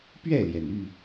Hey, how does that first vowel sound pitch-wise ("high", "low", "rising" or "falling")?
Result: falling